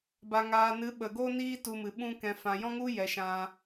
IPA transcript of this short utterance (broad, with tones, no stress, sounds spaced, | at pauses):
b a˨ ŋ aː˨ n ɨ˨˦ ɓ ə˨ ɡ o˦ n iː˦ t u˧ m ɨ˨ ɓ ũ˦ k ɛ̃˨ f ã˨ j ɔ̃˦ ŋ u˦ j ɛ˨˦ ʃ ã˧